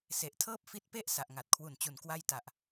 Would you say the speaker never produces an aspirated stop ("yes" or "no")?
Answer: no